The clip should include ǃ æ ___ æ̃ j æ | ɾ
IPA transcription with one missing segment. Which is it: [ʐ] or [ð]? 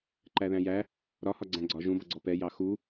ð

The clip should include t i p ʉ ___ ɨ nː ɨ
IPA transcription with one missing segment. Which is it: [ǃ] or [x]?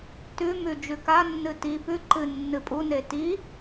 ǃ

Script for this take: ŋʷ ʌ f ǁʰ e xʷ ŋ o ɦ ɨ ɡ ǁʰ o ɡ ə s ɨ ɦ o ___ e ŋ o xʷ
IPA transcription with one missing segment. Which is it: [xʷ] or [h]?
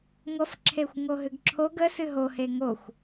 h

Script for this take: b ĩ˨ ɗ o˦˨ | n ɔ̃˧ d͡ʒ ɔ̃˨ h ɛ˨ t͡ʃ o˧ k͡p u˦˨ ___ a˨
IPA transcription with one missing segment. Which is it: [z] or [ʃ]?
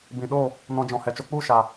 ʃ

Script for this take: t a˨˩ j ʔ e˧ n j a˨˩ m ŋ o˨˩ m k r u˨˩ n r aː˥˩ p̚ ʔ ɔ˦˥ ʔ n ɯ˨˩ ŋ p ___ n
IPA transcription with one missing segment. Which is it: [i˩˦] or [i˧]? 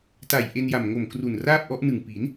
i˩˦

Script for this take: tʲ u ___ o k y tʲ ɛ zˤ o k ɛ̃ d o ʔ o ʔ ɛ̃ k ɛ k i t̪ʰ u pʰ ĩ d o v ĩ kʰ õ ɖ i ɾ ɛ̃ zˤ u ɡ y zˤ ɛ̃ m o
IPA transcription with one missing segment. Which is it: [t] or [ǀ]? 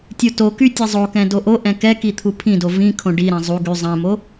t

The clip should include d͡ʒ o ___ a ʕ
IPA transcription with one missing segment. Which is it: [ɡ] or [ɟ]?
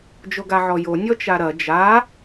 ɡ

